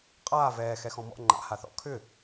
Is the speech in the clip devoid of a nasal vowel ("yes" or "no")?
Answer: no